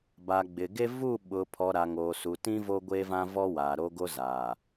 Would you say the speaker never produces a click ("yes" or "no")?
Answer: yes